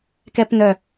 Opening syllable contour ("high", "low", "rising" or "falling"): high